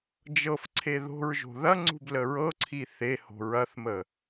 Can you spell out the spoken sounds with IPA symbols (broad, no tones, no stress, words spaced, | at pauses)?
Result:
d͡ʒɤfǀʰe ðo̤ɹ ʒo̤ðɐŋ͡ǀṳb ləɹɤǀʰi θeho̤ ɹɐθmə